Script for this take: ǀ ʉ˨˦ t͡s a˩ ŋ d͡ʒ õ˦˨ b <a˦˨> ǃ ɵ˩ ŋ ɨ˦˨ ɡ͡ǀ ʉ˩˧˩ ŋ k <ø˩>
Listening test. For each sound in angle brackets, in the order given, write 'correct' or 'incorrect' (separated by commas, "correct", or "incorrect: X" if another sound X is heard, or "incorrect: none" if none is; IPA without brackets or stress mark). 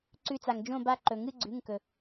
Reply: correct, incorrect: ɵ˩